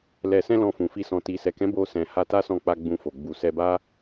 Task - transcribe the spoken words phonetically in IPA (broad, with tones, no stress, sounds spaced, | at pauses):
l ɛ˨ s ɛ̃˧ l ɔ̃˧ f ũ˨ f i˧ s ɔ̃˨ t i˨ s ɛ˨ k ɛ̃˨˦ b o˧ s ɛ̃˨ h a˧ t a˦ s ɔ̃˧ k͡p a˧ ɡ͡b ũ˧ f o˨ ɡ͡b u˨ s ɛ˧ b a˦